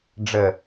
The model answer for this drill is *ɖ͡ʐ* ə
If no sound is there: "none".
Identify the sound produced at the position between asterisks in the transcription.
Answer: ɖ͡ʐ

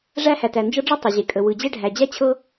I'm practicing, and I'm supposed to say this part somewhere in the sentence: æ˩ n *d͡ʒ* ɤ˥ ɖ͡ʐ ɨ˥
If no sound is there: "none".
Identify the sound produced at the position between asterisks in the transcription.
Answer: d͡ʒ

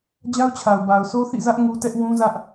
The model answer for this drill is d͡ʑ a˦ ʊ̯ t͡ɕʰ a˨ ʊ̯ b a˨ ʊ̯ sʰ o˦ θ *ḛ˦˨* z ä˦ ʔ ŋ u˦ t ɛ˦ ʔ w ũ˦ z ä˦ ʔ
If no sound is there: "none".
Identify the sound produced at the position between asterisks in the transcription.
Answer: ḭ˦˨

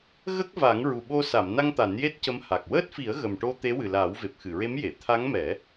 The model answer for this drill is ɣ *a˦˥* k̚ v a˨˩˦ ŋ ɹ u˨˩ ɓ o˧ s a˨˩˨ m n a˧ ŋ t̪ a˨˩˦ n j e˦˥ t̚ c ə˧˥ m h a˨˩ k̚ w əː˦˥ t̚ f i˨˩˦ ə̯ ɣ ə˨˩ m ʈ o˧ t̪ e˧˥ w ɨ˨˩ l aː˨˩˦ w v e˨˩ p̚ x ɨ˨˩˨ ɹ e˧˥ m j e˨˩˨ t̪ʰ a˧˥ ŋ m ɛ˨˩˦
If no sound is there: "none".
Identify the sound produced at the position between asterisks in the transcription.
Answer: ə˦˥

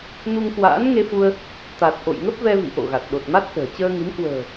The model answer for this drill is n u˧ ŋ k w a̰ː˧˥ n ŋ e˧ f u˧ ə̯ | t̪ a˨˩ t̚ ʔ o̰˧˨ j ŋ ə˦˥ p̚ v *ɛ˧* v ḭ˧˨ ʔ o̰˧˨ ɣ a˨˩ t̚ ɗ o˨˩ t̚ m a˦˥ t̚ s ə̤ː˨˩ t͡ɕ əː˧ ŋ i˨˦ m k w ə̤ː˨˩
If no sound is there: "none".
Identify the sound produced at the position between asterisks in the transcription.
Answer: ɛ˧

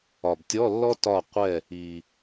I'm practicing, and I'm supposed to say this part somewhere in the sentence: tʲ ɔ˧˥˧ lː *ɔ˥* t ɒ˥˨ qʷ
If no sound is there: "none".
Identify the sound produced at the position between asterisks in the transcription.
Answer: ɔ˥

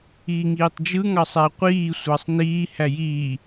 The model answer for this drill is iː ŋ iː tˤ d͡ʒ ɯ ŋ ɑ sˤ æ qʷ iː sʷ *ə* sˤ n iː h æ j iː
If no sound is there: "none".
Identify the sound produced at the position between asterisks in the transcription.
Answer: ɑ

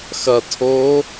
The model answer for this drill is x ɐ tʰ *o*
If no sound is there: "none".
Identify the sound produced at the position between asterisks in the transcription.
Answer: oː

